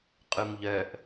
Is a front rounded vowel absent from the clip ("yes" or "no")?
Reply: no